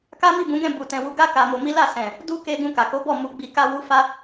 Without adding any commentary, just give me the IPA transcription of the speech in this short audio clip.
k a˦ m i˦˨ b ũ˨˦ ɡ ɛ̃˦˨ b u˨ t ɛ̃˨ w u˧ ɡ a˦ k a˧ m o˧ m i˦ l a˦˨ s ɛ̃˨ | d u˦ k e˧ ɡ ũ˧ k a˨ k o˨˦ b ɔ˦˨ m u˧ ɡ͡b i˧ k a˧ w u˧ f a˦

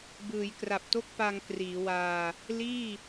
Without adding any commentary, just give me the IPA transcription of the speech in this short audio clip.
b ɯː˩˦ j k r a˨˩ p̚ t o˥˩ k̚ p a˧ ŋ k r iː˩˦ w aː˧ | l iː˥˩

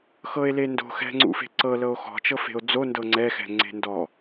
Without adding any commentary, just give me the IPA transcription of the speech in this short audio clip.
x ɤ e̯ l e n d o̤ x ɛ̤ ŋ͡ǀ ṵ f e̤ ǀ ɤ l ɤ o̯ x ɔ̤ t͡ʃ ɤ f e̤ o̯ d͡z o n d ɤ ŋ͡ǀ ɛ x ɛ̤ ŋ͡ǀ e̤ n d ɔ

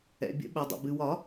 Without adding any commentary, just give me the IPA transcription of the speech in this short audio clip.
ɛ̰˩ bʲ ə̰˨˩˦ ɓ ɛ˩ dˤ ə̰˩ b ɨ˩ w ɒ˨˩˦

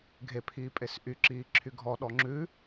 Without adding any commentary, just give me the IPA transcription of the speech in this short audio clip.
ɡʱ e pʰ iː pʼ e s ʔ y ǁ iː ǁʰ y ɡʱ ɔ ɗ ɔ ŋ͡ǁ ʉ

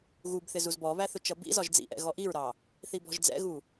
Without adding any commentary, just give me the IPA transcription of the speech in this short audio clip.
ɣ u b θ ɪ z u z b ɔ β æ θ ʊ t͡ʃ ʌ b ḭ z ɒ ʒ d͡z ḭ ʔ ɛ̰ ɣ ɔ ʔ i ɹ ɾ ɑ | θ i b ɔ̤ ʒ d͡z ɛ̰ ɣ u

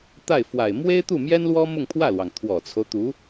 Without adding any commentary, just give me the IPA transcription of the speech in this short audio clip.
t̪ a˥˩ ɪ̯ f w a˨˩ ɪ̯ m w e˥ ɪ̯ t̪ u˥˩ m j ɛ˥ n l w ɔ˥ m ʊ˥˧ ŋ pʰ w ä˥˩ l w ɑ˩ ŋ t̪ʰ w ɔ˨˩ t͡sʰ o˦ ʊ̯ t̪ u˧˥

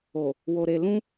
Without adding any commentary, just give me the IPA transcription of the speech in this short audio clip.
o˨ | w o˨ ɾ e˨ l ũ˧

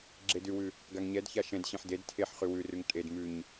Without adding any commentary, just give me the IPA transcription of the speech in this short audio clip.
ɡ͡ǁ e d ʉ w ʉ | ɡ a ŋ ɲ ɛ d ç a ʃ ɛ̃ d ɕ ẽ ħ d e d tʰ e ħ χ ʉ w ʉ r ʉ ŋ tʼ e d m ʉ ɲ

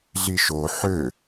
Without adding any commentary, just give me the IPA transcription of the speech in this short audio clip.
ɮ i ʃ o ħ ø

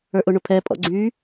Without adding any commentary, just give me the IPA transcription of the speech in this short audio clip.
ə˞ ʔ ʊ ɳ ʊ pʰ ɛ pʼ ɔ̰ ɡ͡ǀ y

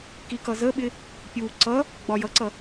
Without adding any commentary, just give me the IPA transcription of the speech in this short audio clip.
k i k ʌ z ə ɓ ɪ | pʲ u ǀ ʌ | ɡ͡b ɒ j ʌ ǀ ʌ

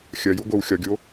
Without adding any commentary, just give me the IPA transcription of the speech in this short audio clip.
xʲ ɐ j u ɡʷ ɘ w xʲ ɒ ɡʲ o

